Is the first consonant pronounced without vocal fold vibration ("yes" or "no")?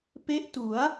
yes